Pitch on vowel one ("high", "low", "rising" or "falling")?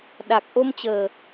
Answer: low